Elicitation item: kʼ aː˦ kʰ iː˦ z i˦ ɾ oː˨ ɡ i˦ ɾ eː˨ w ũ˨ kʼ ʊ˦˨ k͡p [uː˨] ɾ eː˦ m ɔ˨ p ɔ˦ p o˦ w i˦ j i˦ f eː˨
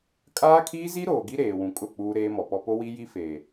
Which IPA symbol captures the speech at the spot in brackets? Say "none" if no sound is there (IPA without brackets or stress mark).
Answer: uː˦